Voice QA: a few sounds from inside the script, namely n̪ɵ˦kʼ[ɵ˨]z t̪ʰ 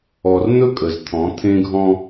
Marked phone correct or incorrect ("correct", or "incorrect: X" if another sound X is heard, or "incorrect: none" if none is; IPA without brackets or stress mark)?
incorrect: ə˨